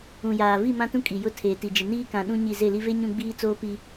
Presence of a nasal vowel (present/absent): present